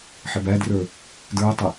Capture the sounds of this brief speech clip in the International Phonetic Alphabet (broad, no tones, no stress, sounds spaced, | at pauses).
ħ ɪ b æ d r ə˞ | d ə˞ o̯ tˤ ʊ